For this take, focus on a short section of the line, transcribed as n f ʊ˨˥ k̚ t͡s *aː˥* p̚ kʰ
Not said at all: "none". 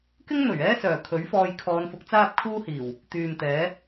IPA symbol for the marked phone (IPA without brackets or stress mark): aː˥